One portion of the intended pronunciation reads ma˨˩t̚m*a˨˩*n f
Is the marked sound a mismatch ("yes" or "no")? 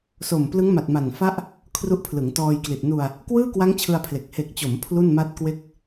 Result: no